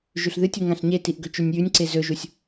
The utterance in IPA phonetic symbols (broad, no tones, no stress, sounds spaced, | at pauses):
ʒ ʉ ɬ ð ɨ tʲ u ŋ ã ɬ ɲ e t i ʔ ɡ ɵ t͡ʃ ʉ nʲ j ʉ nʲ ǀ e z ɵ ʒ u sʲ